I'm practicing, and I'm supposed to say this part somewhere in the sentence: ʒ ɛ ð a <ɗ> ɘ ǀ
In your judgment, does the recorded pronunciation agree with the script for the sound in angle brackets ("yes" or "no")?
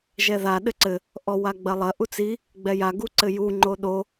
yes